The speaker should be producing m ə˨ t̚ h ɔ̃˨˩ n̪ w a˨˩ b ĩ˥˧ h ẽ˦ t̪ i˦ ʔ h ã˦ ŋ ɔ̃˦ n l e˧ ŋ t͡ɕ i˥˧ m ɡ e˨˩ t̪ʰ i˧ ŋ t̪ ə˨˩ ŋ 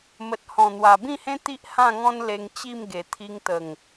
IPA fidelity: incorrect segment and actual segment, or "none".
ã˦ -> ã˥˧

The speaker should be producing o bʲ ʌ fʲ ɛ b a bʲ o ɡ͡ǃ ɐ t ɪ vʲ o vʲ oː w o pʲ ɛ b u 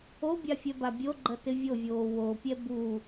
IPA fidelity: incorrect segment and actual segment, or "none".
ʌ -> a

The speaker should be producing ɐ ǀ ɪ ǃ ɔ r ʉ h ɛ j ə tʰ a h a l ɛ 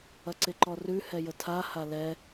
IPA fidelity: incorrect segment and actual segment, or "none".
none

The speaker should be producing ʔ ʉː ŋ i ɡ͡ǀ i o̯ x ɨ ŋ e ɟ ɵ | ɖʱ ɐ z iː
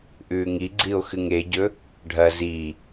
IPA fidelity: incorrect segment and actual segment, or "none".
none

